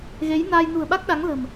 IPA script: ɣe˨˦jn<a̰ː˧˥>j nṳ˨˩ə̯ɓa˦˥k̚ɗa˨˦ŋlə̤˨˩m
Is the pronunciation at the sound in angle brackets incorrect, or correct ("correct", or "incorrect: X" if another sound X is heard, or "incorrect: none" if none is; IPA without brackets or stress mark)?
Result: incorrect: aː˧